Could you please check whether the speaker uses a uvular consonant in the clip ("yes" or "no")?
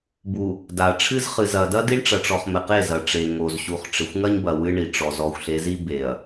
yes